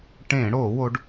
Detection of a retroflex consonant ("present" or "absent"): present